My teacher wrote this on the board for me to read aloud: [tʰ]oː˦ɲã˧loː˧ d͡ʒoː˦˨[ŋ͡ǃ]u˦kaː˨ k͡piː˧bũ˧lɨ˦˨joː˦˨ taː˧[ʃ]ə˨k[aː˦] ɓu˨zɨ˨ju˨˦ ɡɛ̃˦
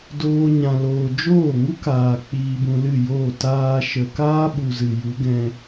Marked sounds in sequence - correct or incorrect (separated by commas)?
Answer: incorrect, incorrect, correct, correct